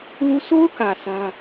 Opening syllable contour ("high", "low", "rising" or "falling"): high